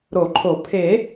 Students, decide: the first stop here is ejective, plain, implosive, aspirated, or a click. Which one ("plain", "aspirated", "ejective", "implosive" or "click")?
click